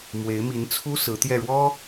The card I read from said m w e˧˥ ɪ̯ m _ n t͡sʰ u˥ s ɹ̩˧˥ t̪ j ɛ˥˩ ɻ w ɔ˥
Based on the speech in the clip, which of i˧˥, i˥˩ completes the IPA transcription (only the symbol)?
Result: i˧˥